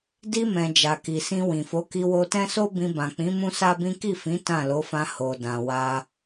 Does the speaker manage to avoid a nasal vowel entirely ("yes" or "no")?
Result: no